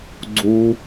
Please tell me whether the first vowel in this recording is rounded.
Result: yes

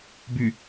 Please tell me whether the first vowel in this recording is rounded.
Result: yes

